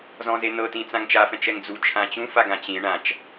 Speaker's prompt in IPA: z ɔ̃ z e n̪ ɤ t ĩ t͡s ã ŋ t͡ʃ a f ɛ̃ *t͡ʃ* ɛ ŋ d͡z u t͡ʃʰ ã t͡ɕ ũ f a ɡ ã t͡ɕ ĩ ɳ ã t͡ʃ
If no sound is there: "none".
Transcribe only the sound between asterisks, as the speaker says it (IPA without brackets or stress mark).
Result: t͡ʃ